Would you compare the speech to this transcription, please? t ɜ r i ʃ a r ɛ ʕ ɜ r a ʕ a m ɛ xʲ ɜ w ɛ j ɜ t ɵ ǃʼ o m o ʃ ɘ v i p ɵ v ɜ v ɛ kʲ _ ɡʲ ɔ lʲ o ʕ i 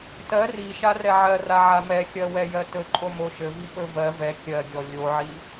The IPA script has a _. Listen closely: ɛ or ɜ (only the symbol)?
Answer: ɜ